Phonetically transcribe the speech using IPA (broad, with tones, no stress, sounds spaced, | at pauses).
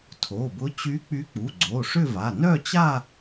tʰ o˩˧˩ b ʊ˧˥ t͡ɕ y˧˥ k͡p y˧˥ k͡p u˩˧˩ ɡ͡ǀ o˩˧˩ ʂ ʏ˥˧ v a˩˧˩ n œ˥˧ t͡ɕ a˥˧